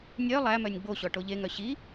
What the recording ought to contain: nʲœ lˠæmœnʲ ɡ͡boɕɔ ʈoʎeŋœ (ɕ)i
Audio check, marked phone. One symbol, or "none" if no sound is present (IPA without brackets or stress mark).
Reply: ɕ